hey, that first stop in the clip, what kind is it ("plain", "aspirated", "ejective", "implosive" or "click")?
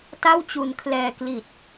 plain